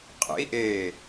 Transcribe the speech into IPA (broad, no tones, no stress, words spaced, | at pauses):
qʼḛi̯ʔeː